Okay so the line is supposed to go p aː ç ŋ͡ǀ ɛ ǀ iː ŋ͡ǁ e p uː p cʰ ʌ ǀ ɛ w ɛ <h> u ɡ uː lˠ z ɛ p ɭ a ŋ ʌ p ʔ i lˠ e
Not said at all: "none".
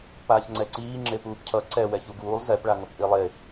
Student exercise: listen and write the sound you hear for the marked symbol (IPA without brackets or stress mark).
ç